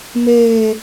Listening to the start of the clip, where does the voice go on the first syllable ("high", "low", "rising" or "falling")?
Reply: high